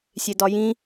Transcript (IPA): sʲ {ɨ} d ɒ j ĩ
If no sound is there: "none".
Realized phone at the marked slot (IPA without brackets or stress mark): e